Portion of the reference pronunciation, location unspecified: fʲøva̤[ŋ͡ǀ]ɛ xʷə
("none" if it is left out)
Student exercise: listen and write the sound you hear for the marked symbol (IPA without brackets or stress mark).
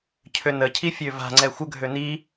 ŋ͡ǀ